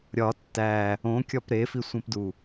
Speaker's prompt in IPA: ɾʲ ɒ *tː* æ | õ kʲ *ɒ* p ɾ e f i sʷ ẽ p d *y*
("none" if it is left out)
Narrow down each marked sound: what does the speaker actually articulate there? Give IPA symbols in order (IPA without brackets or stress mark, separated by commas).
tː, ɒ, u